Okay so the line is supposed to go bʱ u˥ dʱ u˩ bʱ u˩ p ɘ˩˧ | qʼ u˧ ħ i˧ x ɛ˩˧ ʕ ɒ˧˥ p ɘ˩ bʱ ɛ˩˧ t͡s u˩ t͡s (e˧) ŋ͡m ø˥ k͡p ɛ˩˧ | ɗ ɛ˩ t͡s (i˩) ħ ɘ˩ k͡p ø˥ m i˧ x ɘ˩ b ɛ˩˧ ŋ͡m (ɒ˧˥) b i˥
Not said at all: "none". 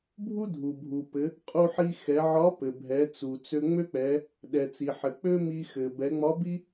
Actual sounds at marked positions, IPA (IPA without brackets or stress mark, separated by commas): ø˧, i˩, ɒ˧˥